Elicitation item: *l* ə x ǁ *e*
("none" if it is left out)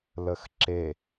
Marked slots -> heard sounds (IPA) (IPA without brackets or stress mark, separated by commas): l, e